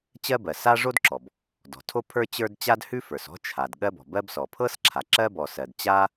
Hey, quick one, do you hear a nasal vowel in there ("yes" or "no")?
no